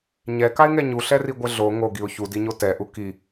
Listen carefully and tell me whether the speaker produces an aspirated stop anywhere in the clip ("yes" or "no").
no